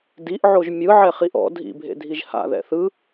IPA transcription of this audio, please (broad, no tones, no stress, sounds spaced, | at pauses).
d i ʔ ʕ o ʒ mʲ ɯ ʕ ɛ χ i ʔ ɔ̰ dʱ ḭ bʱ ḛ dʱ i ʒ h a̰ ð ɛ̰ θ ɯ